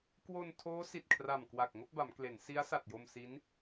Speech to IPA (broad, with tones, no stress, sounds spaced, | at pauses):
k w o˧ n tʰ oː˦˥ s i˨˩ t̚ kʰ r a˨˩ m k w a˨˩ k̚ ŋ o˥˩ k̚ b a˩˦ m k l e˩˦ n s i˦˥ a̯ s a˨˩ t̚ j o˧ m s i˦˥ n